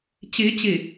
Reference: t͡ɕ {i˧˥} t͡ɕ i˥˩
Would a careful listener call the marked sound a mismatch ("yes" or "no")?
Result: no